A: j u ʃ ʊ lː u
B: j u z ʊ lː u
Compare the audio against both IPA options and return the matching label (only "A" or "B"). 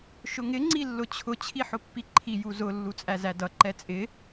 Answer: B